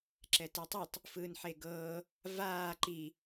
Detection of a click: present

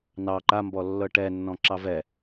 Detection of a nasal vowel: present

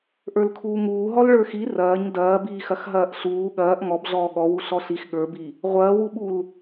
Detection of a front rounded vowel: absent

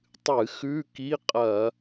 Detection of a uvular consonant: present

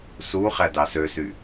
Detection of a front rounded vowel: present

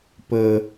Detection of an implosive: absent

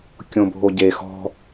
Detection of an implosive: absent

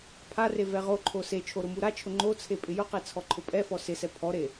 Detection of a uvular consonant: present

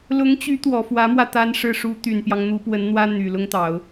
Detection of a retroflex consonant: present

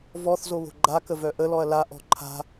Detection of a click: present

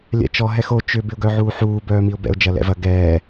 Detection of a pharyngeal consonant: present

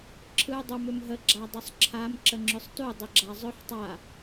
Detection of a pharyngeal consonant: present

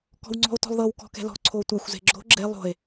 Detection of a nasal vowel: absent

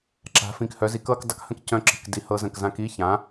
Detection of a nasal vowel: present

